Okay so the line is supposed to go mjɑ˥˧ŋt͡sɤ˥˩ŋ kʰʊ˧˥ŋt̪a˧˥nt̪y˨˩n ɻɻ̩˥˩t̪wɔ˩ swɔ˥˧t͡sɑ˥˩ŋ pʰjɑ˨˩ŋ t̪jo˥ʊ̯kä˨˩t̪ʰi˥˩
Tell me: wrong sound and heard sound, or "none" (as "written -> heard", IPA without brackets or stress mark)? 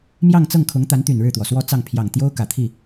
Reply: none